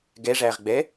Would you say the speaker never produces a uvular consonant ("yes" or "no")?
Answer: no